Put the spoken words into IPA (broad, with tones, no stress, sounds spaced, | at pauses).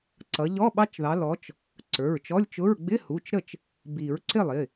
ǀ ʌ˨˦ ʎ ɔ˧˥˧ ɓ ɑ˦˥ t͡ʃ ð ɑ˨˦ l ɔ˨˦ t͡ʃ | ǀ ə˞˩˧˩ ɹ t͡ʃ ɔ˧˥˧ lʲ t͡ʃ ʊ˧˥˧ ɹ ɡ͡b ɪ˧˥˧ h u˩˧˩ t͡ʃ ɾ ə˥˩ t͡ʃ | b i˨˩˦ ɹ ǀ ɪ˥˩ lˠ ɪ˩˧˩